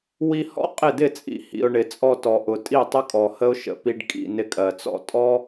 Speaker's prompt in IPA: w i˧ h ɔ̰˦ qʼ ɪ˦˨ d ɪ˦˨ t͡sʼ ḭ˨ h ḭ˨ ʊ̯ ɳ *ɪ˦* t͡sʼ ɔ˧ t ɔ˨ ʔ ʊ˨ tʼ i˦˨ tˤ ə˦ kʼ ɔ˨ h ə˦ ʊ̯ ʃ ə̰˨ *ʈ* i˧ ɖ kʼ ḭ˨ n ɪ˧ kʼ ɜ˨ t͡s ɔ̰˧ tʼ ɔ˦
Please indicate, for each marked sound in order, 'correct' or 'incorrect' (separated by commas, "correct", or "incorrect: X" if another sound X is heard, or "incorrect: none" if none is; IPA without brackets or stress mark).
incorrect: ɪ˨, incorrect: p